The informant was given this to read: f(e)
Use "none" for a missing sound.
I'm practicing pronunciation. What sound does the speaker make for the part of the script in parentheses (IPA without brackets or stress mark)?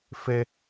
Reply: e